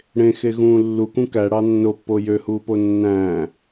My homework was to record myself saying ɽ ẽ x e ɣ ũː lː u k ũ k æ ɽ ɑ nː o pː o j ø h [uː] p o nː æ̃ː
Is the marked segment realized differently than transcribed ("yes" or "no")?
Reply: no